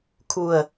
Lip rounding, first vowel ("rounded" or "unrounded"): rounded